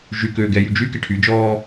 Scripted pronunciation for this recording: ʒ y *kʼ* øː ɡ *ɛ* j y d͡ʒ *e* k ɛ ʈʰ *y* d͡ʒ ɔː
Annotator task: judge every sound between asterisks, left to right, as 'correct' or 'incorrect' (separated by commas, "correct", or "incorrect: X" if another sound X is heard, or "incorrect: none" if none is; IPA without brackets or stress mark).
incorrect: k, correct, incorrect: y, correct